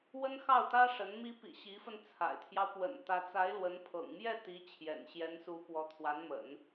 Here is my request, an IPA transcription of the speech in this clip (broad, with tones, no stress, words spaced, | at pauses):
wə˥nxɑ˥˩ʊ̯t̪ä˥ʂə˧˥n mi˧˥pḭ˨˩ ɕi˧˥fə˧n t͡sʰa̰˨˩ɪ̯t̪ʰjɑ˦ʊ̯ pwə̰˨˩n t̪ä˧˥t͡sa˧˥ɪ̯lwə˧˥n pʰɤ̰˨˩ŋmjɛ˥˩t̪i˧˥ t͡ɕʰjɛ̰˨˩nɕjɛ˧˥nsu˧˥ pwɔ˧˥t̪ʰwa˧˥nmə̰˨˩˦n